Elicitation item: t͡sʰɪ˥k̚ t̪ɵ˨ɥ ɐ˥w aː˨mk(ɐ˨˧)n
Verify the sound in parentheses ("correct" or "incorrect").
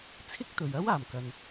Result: incorrect